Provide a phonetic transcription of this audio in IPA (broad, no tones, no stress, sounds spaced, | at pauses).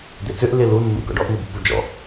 d̪ e t͡s ø ʔ l ɪ l u nː ṵ ɡ ɔ̰ ɖ ɔ ʔ n u b pː u d͡ʒ ɔ̰